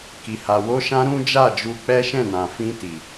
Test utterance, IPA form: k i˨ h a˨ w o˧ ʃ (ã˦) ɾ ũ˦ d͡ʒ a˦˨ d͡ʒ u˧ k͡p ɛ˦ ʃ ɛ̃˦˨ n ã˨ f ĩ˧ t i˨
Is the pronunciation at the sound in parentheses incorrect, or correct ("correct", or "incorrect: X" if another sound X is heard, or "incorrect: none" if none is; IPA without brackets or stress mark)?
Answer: incorrect: ã˧